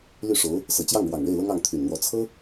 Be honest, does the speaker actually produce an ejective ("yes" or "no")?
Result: no